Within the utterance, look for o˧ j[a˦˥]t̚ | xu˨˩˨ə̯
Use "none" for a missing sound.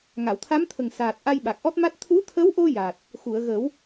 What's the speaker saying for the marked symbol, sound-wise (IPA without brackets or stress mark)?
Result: a˨˩